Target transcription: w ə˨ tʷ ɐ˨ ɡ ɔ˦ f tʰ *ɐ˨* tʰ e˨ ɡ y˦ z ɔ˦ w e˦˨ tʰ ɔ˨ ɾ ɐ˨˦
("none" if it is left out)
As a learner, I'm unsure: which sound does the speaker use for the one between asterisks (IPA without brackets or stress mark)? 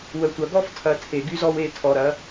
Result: ɐ˨